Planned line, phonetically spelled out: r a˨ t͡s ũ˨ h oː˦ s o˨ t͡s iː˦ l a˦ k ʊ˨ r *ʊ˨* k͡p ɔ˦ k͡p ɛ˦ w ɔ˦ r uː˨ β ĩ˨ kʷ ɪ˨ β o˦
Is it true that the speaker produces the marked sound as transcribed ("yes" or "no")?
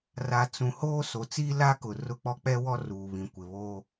no